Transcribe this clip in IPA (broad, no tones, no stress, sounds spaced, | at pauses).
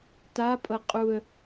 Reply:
t a pʼ ɤ qʼ u ə̯